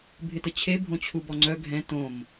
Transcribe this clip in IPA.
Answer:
bʱ ɪ t ə t͡ɕʰ e bʱ õ t͡ɕʰ u b ɔ ŋ͡ǀ œ ɡʱ ɛ̃ t õ m

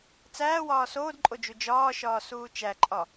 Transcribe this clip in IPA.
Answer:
t͡s æː w ɒː s oː d ǃʼ o d͡ʒ u d͡ʒ ɒː ʃ ɒː s uː t͡ʃ æ ǃʼ ɒ

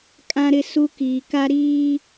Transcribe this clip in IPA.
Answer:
kʼ ã˦ ɾ ɪ˦ s u˦ k iː˨ k a˦ ɾ iː˦

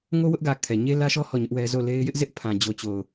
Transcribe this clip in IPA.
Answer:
ŋ o˦ w ʊ˦ ʔ ɡ ä˨ kʰ ɛ˨ ɲ e˦ l ä˦ ʃ ɔ˦ h ɔ˦˨ ɲ ʊ˦ ʔ w ɛ˦ z o˦˨ l e˦ ɪ̯ j ɪ˦ ʔ z ɪ˦ ʔ pʰ ã˨ d͡ʑ o˨ t͡ɕ o˨ ʊ̯

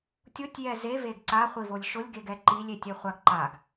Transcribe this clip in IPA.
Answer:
tʲ ʊ tʲ j ɛ z e v e ɡ ǀ a χʷ i v o lʲ ʃ ʊ lʲ ɡ e ɡ ɛ ǃ i lʲ e tʲ e χʷ a ɡ ǃ a ɡ

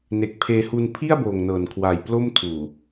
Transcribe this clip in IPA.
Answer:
n e˨˩ k̚ pʰ eː˧ h u˧ n pʰ i˥˩ a̯ b oː˨˩ ŋ n ɤː˨˩ n kʰ w aː˨˩ j p l o˥˩ m tʰ uː˨˩

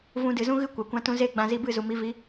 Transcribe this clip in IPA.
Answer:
v ũ˧ d ɨ˨ z ũ˦ ɣ ɨ˦ kʷ a˨ kʷ ã˧ t ũ˧ z eː˦ ɡ͡b ã˧ z i˧ b ɨ˦˨ z u˨ m i˧ v i˨˦

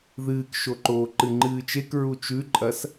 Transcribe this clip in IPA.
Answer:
ð ɨː k ʃ o ǃ oː ǃ ɨ ŋ͡ǃ ɨː t͡ʃ e k ɹ u t͡ʃ ʉ ǃʼ ɐ s

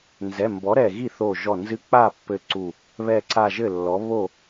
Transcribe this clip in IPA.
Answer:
n z ɛ˩˧˩ m b ɔ˩˥ ɾ ɛ˧˩ ɣ i˥˩ θ o˧˩ ʒ ɔ˧˩ n z ɨ˧˥ k͡p a˥˩ pː ɘ˧˩ ǀ u˧˩ | β ɛ˧˩ ǀ a˧˩ ʒ ɘ˥˩ lː ɔ˩˥ β o˥˩

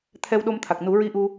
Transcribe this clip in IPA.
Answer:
t̪ʰ ɛ˧ w ɗ o˧ m t̪ʰ a˨˩ k̚ n u˨˩˦ ɹ i˧ ʔ u˧

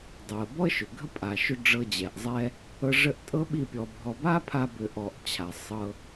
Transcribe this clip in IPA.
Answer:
dˤ o˨ ə̯ b ɔ˦ ə̯ ʃ ʏ˨ ɡʱ ə˦ pʼ a˨ ʃ ʏ˦ ɖ͡ʐ ɤ˧ d͡ʑ ɛ˨ ʔ zˤ ɛ˦ | ɤ˧ ʐ ə˦˨ ʔ tʼ ɤ˦ ɓ i˦˨ pʲ ɔ˧ bʱ ɔ˧ b a˦ pʰ a˧ b ʏ˧ ʔ ɔ˧ ʔ t͡ɕʰ a˨ sˤ ɤ˦

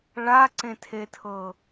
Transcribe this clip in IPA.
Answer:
ɭ a ǀ ẽ tʰ e tʰ ɤ

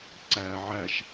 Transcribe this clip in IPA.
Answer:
ǀ æː ʕ æ ʃ

